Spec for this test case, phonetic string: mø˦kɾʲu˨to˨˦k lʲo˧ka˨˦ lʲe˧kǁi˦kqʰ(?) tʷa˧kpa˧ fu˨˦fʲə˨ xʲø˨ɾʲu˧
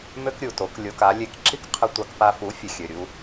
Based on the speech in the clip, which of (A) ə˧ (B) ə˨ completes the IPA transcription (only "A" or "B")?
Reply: A